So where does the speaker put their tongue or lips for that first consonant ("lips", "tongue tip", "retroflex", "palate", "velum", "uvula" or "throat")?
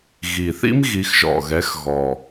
velum